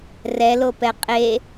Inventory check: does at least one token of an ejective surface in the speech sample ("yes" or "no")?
yes